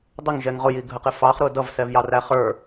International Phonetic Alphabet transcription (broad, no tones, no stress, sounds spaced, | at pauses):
dˤ ə ŋ ʒ ɛ ŋ ʁ ʊ j i ɡʱ ə q ɪ f ɑ χ ɾ ʊ d ʌ v s ɛ v j ɑ r æ χ ə˞